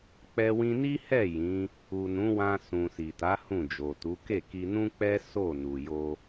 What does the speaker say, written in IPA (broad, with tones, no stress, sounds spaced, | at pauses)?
k͡p ɛ˧ w ĩ˧ n i˦ h ɛ˦˨ j ĩ˨˦ | u˨ n ũ˨˦ w ã˧ s ũ˨ s i˨ t a˨˦ h ũ˦˨ d͡ʒ o˨ t u˨˦ k e˦˨ k i˧ n ũ˦ k͡p ɛ˦ s o˦˨ n u˨ j o˧